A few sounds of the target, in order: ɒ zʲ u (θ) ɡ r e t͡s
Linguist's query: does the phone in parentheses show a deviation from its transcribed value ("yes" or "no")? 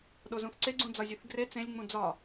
no